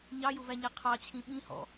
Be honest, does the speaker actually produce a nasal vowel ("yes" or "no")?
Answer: yes